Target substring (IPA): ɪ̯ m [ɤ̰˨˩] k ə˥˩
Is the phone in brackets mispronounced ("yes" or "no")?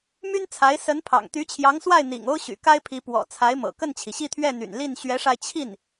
no